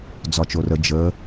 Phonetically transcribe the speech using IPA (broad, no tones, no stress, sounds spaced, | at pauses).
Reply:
d͡z ɒ t͡ʃ o r ə d͡ʒ ə